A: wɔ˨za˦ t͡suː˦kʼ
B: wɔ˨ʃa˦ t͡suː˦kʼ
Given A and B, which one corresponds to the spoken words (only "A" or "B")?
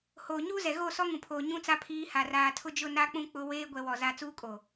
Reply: A